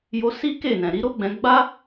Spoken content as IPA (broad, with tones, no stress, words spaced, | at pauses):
jo˧ si˦ ke˦˨nɛ̃˨ ɾi˨˦ɾo˦ɡ͡bɛ̃˧ ɡ͡ba˦